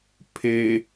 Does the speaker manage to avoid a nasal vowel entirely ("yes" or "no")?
yes